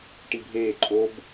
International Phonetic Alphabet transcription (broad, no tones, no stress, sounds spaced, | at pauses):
ʈ i bʱ eː ǃʼ o b